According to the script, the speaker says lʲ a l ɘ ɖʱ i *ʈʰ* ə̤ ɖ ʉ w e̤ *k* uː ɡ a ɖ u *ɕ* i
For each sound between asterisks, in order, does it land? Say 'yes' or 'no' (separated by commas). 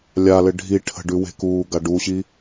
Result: yes, yes, yes